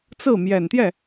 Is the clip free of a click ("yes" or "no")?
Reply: yes